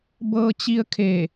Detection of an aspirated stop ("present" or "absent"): present